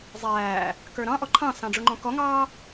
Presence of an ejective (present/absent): absent